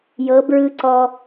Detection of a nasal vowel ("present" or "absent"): absent